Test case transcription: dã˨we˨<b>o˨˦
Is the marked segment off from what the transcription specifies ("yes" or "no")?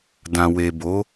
no